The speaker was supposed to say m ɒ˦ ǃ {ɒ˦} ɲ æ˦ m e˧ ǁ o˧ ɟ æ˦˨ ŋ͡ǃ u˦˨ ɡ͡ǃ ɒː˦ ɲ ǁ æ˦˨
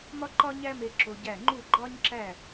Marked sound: correct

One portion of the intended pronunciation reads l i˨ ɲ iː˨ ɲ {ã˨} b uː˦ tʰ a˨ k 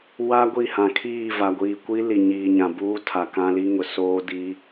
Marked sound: correct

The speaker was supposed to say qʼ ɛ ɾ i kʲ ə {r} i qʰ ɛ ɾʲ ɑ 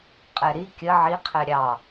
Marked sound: incorrect: ʕ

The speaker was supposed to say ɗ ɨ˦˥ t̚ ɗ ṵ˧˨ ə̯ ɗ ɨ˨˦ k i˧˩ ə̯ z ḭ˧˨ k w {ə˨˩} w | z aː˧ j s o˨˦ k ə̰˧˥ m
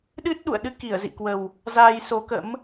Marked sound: correct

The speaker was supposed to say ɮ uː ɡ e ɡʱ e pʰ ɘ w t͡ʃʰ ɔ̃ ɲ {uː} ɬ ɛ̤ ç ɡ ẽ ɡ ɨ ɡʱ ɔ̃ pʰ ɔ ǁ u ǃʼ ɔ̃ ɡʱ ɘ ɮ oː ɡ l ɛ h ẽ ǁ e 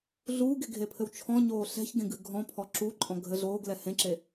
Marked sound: incorrect: oː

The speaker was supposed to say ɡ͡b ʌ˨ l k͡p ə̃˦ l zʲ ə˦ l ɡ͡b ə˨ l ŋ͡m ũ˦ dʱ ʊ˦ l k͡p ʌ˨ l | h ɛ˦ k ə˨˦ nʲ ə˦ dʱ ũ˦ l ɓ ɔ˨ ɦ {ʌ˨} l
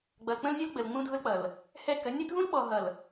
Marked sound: correct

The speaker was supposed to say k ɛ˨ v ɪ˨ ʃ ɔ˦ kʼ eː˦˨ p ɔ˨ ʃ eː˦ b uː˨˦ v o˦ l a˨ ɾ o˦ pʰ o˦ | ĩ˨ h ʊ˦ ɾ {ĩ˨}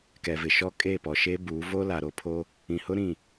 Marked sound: incorrect: ĩ˦˨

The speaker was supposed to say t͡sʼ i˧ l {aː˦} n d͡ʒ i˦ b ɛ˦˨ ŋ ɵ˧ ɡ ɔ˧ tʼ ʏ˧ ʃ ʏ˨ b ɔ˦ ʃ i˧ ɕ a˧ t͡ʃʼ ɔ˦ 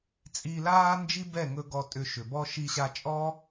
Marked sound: correct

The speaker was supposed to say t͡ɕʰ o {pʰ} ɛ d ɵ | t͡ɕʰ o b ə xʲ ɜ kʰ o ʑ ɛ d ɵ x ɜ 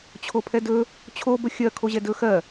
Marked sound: correct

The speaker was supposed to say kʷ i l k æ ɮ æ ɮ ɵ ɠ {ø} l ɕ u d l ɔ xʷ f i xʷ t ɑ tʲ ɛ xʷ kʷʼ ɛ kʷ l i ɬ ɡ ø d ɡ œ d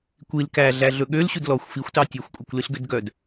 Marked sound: correct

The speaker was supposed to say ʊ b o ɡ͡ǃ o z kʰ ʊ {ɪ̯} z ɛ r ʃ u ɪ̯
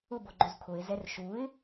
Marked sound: correct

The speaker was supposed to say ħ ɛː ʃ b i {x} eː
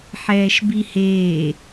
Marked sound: incorrect: h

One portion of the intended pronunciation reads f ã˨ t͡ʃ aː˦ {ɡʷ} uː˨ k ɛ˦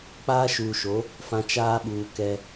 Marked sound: incorrect: ɓ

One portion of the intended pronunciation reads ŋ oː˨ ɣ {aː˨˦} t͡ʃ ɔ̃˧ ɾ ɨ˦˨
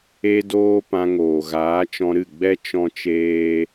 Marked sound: correct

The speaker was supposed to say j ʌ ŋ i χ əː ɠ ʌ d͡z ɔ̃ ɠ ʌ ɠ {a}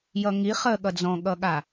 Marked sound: correct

